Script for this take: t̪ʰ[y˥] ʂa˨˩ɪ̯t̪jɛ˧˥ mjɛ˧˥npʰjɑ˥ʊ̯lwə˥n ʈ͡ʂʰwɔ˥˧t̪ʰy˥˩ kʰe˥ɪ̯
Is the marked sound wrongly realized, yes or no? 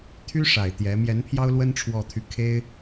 no